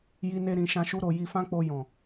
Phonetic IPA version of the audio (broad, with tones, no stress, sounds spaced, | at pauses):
j i˦ n e˦ ɾ ĩ˧ ʃ ã˦ ʃ u˦ ɾ o˧ j i˧ f ã˦ k͡p o˧ j ɔ̃˨